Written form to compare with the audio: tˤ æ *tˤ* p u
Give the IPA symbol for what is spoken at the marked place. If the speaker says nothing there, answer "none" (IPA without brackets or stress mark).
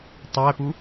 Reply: none